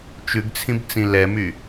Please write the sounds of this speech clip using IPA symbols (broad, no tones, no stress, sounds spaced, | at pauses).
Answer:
t͡ʃ ʉ ɡ t͡sʰ ĩ b t͡s ĩ l ɛ m y